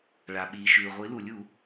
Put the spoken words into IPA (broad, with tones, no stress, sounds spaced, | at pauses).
ɭ a˩ ɓ iː˩ ʃ ʉː˩ ʁʷ i˩˧ l u˩ lʲ u˧˩˧